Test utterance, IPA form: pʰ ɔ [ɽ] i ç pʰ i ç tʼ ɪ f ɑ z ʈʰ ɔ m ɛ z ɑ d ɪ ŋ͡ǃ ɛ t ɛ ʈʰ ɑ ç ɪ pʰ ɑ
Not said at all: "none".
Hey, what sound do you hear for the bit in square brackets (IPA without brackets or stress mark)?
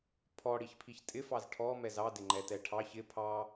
ɽ